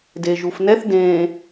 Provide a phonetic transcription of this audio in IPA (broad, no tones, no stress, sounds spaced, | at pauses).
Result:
d e ʒ u f n ɛ θ d ẽː